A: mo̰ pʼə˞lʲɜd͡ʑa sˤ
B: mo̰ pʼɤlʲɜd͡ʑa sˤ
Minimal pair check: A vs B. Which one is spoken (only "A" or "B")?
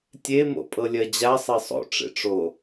B